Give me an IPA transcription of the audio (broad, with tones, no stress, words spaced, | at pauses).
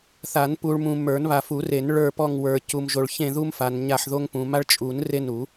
θa˨˩˦npu˨ɭ mũ˨ mə˞˨˩˦nβa˨fu˨˩˦re˨˩˦n ɭə˞˦˨pɔ˦˨ŋwə˞˨ cu˨mʒo˨ɭ çẽ˦˨ðu˦mfa˨n ɲa˦˨ħðo˦ŋpũ˨ ma˦ɭt͡ʃʼu˨˩˦n re˦nu˨˩˦